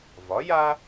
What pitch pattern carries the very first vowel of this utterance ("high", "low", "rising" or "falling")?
rising